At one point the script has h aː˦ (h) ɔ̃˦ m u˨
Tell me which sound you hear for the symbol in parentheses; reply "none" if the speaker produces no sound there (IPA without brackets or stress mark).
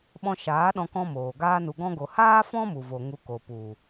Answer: f